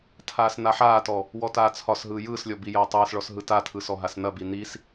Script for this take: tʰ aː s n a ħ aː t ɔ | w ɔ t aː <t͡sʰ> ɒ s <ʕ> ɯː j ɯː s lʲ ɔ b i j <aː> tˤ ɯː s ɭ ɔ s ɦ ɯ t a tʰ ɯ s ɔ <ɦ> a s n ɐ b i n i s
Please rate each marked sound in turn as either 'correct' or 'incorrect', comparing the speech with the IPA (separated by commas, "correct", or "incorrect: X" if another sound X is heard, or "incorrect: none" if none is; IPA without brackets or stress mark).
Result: correct, incorrect: ɦ, incorrect: ɐː, correct